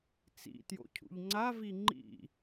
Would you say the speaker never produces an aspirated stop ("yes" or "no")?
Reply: no